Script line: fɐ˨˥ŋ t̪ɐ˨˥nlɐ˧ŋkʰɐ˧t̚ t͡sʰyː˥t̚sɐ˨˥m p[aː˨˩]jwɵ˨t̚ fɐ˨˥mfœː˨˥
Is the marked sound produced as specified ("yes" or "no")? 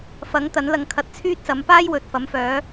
no